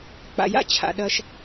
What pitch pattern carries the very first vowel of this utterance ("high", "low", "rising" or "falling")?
low